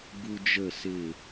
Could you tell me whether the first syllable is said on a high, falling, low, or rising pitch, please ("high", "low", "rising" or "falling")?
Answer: high